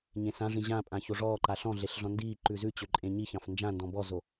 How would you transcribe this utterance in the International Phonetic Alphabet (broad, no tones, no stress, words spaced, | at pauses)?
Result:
ɲẽsãʐĩ ʑãpʼã çoʐɔːǃa ɬɔ̃ɮeɬ ɮɔ̃ndiːǃʉ zʉt͡ɕø ǃʼẽɲiçɑ̃f nd͡ʒãndɔ̃ bɔzo